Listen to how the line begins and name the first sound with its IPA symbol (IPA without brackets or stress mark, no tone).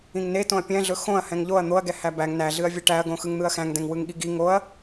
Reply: ĩ